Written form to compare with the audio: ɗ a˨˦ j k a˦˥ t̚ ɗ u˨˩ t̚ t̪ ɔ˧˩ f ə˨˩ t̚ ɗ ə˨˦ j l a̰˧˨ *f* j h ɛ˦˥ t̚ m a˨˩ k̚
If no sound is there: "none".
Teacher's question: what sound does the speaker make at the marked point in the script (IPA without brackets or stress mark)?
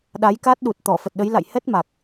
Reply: none